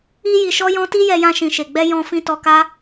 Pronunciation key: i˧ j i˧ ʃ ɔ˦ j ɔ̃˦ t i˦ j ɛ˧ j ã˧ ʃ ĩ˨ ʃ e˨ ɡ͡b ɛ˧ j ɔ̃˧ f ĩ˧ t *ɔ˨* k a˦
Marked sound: incorrect: ɔ˧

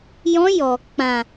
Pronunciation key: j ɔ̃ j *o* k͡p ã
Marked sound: incorrect: ɔ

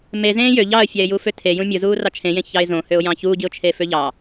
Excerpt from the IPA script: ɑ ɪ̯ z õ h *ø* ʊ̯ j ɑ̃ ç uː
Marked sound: correct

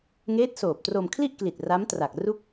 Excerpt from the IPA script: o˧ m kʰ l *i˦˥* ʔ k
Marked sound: incorrect: i˥˩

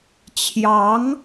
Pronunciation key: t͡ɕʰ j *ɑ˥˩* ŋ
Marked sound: incorrect: ɑ˧˥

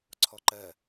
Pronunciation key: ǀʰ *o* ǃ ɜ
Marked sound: incorrect: ɔ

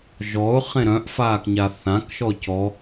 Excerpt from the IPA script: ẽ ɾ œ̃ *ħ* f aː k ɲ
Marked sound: incorrect: ʔ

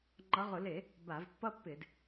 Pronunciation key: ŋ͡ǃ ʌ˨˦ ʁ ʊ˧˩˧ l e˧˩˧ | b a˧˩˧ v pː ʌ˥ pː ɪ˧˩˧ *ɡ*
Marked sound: incorrect: d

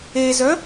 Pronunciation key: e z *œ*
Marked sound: correct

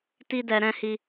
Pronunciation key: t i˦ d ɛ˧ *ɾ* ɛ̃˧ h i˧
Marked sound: correct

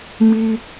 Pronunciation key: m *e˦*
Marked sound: incorrect: i˦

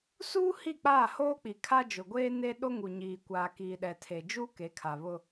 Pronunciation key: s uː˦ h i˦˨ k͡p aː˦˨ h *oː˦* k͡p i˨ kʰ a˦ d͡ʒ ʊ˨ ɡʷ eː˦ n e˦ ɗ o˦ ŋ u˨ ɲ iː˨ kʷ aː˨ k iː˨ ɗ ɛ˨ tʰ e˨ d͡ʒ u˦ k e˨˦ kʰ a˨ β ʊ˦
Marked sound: correct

